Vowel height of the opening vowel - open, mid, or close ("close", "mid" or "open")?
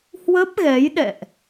mid